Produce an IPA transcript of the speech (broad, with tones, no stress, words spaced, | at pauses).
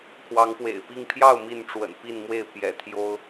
kʰwɑ˨˦ŋpwḛ˨˩ɪ̯pi˥˨ŋ pʰjɑ˥˨ʊ̯ mi˥˨nʈ͡ʂwə̰˨˩npi˥˨nmwe˥˨ɪ̯ pjɛ̰˨˩t̪ʰjo˦ʊ̯